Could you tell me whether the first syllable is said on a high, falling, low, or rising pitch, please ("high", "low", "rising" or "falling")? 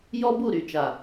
high